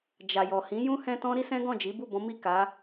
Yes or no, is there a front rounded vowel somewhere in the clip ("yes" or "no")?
no